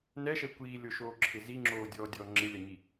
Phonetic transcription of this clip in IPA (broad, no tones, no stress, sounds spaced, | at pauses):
n ɛ ʃ ɛ kʷ iː lʲ o ʃ oː ǁʰ ɪ z i ŋ͡ǁ oː dʲ ɔː dʲ ɔː ŋ͡ǁ ɪ lʲ a ɲ i